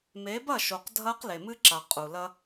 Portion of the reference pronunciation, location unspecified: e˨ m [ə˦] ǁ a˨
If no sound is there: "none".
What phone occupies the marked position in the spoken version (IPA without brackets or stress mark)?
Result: ɨ˦